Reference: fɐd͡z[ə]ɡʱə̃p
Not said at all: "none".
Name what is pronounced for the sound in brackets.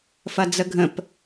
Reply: ə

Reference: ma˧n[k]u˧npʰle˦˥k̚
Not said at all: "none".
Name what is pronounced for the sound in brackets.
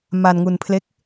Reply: ŋ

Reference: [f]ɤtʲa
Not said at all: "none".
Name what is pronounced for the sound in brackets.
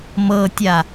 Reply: m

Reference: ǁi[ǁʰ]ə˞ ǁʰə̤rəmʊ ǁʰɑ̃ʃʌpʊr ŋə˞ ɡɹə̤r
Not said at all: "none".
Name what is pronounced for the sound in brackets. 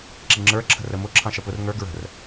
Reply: ŋ͡ǁ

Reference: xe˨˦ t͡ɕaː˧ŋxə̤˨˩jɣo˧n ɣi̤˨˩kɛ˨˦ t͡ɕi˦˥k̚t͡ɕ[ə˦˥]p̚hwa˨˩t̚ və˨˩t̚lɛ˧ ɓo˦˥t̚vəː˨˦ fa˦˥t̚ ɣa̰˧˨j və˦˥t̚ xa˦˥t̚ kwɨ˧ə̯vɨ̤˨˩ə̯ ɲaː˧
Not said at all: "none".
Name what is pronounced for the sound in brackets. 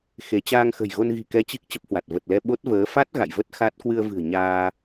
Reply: ə˦˥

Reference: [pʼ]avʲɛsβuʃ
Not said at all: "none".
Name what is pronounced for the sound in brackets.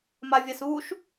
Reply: m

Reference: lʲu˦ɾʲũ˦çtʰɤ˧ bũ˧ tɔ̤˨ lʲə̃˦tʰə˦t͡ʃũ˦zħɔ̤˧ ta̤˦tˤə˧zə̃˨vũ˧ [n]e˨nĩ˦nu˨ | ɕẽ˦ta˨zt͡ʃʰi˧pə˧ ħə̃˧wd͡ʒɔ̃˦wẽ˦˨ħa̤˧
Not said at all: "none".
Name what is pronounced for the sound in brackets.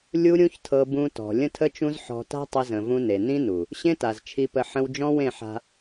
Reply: n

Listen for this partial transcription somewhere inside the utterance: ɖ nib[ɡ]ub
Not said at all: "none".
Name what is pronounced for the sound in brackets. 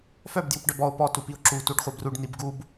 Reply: ɡ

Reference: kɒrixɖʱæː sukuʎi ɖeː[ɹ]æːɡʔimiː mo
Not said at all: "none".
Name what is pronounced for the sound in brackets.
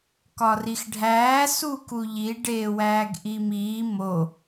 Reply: w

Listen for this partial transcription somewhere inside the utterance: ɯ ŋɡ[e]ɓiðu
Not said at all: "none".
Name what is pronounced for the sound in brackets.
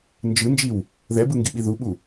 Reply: i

